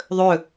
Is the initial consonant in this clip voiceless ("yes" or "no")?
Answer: no